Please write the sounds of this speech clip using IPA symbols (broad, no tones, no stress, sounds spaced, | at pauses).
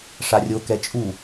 ʂ a rʲ o k ɛ t͡ʃʼ u